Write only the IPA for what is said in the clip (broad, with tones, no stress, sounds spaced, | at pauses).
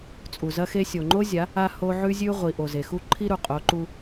t͡sʼ u˨ z ɐ˦ x e˦ sʲ o˨ ŋ͡ǃ o˦ zʲ a˨˦ | a˦ h o˦ ʕ ʉ˦ zʲ ʉ˦ ʁʷ i˨ ʔ o˨ z e˨ x u˦ ǃʰ i˦ ɾ u˨ qʼ o˨˦ ǃ u˦